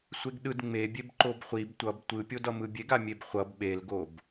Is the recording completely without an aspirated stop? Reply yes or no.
yes